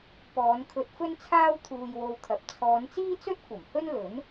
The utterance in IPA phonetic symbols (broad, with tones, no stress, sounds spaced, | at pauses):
p ɔː˨˧ n kʰ ɵ˧ t̚ f ɵ˥ n t͡sʰ aː˥ w t̪ʰ uː˧ j w o˧ w t̪ʰ ɐ˨ p̚ t͡sʰ ɔː˨˧ n t͡s iː˥ t͡s ɵ˥ t̚ kʷ ɐ˨˩ m h ɵ˥ n l ɵ˨˥ n